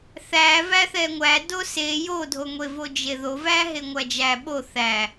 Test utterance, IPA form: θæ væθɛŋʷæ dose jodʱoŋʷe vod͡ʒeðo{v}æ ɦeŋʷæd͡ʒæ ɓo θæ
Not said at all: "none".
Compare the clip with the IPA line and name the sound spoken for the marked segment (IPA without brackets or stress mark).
v